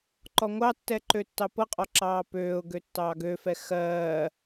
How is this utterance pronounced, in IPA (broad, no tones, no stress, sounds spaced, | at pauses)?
ǃ ɔ ŋʷ ɑ tː ɛ ǃ ø tː ɑ p ɤ qʼ ɔ ǁ ɑː p øː ʊ̯ ɡ ø tː ɑː ɡ ø f ɛ x ɜː